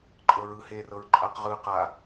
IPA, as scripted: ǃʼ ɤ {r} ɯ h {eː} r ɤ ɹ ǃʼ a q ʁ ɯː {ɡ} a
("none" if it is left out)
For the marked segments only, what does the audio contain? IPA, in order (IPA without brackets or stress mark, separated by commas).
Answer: ɹ, eː, q